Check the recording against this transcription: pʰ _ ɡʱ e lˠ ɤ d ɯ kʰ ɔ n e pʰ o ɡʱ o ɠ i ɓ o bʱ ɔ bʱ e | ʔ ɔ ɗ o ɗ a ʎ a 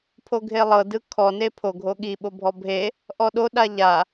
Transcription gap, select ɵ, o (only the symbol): o